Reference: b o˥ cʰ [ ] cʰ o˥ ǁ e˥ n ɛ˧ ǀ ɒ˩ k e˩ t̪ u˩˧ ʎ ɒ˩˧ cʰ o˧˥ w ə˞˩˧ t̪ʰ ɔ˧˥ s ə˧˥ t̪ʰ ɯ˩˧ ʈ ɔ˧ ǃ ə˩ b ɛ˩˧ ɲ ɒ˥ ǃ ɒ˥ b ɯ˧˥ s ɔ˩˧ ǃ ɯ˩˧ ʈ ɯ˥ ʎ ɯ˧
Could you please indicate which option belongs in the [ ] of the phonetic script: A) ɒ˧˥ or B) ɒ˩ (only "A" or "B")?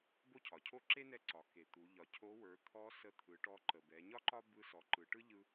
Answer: B